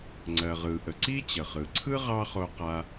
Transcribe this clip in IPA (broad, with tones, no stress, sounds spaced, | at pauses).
ŋ͡ǀ ɜ˩ ʁ ɯ˩ ʔ ə˩ ǀ i˥ t͡ɕ ə˩ χ ɯ˩ ǀʰ ɯ˥ ʁ ɑ˦ χ o˦ q a˦